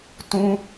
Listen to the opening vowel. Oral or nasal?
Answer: nasal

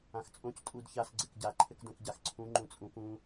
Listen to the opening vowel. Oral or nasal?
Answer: nasal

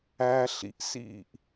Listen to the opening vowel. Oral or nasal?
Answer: oral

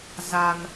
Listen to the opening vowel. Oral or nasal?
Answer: oral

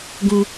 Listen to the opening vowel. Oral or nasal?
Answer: nasal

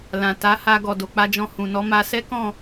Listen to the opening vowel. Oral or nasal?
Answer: nasal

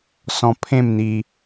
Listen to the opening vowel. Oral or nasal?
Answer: nasal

